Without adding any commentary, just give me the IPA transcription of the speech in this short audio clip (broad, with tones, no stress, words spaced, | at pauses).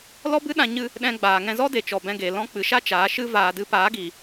lɔ˦bɨ˦ɗã˧ ɲɨ˧ | ɗɛ̃˧ɡ͡baː˨ ŋɛ̃˧zɔ˦de˨t͡ʃɔ˨ bɛ̃˧ɡe˨lɔ̃˦ k͡pɨ˨ʃa˦ t͡ʃaː˨˦ʃɨ˦ vaː˧ dɨ˧paː˨˦ɡiː˨